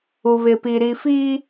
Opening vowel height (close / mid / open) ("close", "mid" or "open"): close